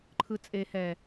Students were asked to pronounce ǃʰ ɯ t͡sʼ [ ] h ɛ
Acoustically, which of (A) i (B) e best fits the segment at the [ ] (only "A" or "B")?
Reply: B